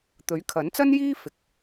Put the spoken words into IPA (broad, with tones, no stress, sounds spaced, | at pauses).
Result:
t̪ ɵ˨˥ ɥ kʰ ɐ˨˥ n t͡s ɐ˥ n j iː˥ f ɪ˨˥ k̚